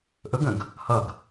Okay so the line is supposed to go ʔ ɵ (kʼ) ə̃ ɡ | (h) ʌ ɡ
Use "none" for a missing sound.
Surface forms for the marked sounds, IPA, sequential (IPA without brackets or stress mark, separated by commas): ɡ, h